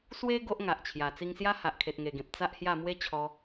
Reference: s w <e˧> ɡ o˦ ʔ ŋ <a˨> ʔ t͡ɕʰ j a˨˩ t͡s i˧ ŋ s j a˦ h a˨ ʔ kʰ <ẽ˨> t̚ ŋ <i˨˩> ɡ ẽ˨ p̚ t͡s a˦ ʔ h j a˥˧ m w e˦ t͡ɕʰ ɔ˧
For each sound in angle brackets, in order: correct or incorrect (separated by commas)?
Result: incorrect, correct, incorrect, incorrect